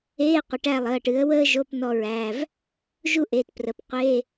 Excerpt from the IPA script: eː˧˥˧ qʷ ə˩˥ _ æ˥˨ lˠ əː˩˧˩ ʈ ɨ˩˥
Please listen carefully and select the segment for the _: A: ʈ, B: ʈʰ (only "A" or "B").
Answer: A